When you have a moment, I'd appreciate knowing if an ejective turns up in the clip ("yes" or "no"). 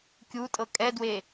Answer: yes